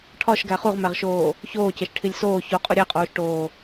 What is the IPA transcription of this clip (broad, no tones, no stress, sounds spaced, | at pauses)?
ʈʰ ɒ ʃ ɡ æ χ u ʁ m æ ʁ ʃ oː | ç oː c e ʃ ʈʰ i lʲ s oː ç o qʼ u ɾʲ æ qʼ oː ʃ ʈ oː